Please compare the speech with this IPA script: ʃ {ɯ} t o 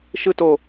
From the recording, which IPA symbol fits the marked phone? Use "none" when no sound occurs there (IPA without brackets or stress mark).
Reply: ɯ